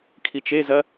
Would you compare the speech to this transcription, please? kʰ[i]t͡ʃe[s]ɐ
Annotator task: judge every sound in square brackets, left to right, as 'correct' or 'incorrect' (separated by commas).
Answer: correct, incorrect